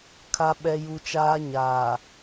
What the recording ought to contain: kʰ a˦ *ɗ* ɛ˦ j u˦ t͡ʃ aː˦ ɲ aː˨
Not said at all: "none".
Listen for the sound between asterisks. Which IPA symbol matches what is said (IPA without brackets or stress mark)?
ɓ